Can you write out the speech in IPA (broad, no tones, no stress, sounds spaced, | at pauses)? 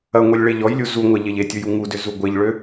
ɐ ŋʷ e lʲ ɭ e ʎ ɔ j lʲ u z u ŋʷ ɐ ʎ e ʎ e tʲ u j u ŋ u d ʏ z u ɡʷ e ʎ ɭ ø